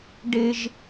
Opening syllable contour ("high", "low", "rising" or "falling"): high